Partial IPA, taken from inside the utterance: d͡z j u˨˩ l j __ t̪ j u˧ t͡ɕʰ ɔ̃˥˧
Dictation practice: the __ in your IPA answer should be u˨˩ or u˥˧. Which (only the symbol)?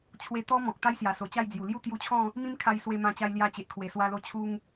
u˥˧